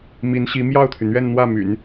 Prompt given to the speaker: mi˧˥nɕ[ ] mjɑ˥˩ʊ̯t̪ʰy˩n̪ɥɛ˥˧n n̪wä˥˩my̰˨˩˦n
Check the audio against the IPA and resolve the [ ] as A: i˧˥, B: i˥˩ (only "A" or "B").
A